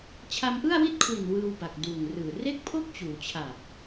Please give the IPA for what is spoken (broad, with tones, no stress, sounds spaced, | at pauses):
t͡ɕʰ a˧ m ʔ ɯ˥˩ a̯ w i˥˩ t̚ kʰ w i˨˩ n w ɯː˧ w b a˨˩ k̚ d uː˨˩ ŋ r ɯː˨˩ r e˥˩ k̚ pʰ o˥˩ k̚ t͡ɕ uː˩˦ t͡ɕʰ a˨˩ p̚